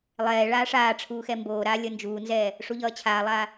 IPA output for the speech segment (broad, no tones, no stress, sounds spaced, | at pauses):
lˠ ɛː ɭ aː ʂ aː ʈ͡ʂʰ uː x ɛ m b oː ɾ aː lʲ ʌ n d͡ʒ uː n z ɛː | ʂ u ʎ ʌː t͡ɕʰ aː lˠ aː